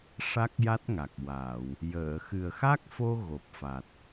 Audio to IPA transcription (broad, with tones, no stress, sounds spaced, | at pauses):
ʂ a˦˥ k̚ j a˦˥ t̚ ŋ a˨˩ k̚ w aː˨˩˨ w | j əː˨˩˨ x ɨ˨˩ ə̯ x a˦˥ k̚ f o˧ ɣ o˨˩ p̚ f a˨˩ t̚